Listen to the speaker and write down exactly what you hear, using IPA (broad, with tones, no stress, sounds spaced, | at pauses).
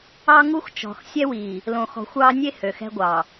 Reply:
ɑ˦ ŋ u˦ x t͡ʃ ɔ̤˨ x sʲ ɛ˦ w iː˨ | l õ˨ x ɔ̤˨ xʷ ɑː˦ nʲ e˦ h ø˨ x ɛ̤˦ ɡʷ ɑ˨